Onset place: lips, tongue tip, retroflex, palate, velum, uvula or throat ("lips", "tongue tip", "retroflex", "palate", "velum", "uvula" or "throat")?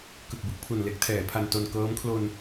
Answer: velum